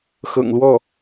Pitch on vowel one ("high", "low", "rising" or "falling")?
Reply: low